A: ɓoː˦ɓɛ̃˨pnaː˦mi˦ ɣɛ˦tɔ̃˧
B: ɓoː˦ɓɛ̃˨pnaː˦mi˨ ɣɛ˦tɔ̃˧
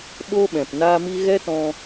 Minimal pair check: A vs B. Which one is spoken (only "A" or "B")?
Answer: A